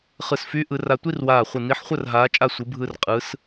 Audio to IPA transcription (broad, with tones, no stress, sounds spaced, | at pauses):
χ ɯ˧˩ s f y˧˥ ʔ ɯ˧˥ r a˥˧ tʷ i˥˧ r w aː˧˩ χʷ ɯ˧˩ n i˧˥ ħ χʷ ə˥˧ r ɦ aː˧˥ t͡ʃʼ a˥˧ sʷ ɯ˧˥ bʱ ɯ˥˧ r qʼ ɯ˧˥ s